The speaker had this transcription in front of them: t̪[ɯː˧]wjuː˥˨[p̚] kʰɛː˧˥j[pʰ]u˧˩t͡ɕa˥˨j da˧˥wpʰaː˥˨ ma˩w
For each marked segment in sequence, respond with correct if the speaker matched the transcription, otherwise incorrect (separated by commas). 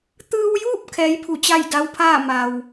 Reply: correct, correct, correct